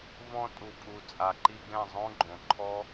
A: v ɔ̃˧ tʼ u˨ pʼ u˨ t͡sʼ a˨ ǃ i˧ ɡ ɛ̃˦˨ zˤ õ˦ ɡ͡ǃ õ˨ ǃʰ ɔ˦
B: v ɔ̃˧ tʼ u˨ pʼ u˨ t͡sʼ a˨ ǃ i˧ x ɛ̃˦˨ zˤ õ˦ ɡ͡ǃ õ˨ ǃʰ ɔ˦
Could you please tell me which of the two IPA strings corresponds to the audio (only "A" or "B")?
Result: A